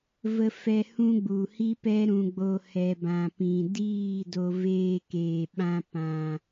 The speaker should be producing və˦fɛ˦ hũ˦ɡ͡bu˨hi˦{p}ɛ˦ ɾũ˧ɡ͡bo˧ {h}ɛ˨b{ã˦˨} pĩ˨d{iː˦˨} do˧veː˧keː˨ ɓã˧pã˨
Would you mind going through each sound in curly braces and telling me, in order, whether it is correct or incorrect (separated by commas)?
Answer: correct, correct, incorrect, correct